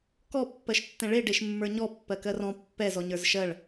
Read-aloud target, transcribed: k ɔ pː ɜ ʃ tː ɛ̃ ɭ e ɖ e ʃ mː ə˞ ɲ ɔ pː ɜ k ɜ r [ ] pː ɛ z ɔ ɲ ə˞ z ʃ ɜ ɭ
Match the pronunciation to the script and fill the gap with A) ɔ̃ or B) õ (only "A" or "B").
A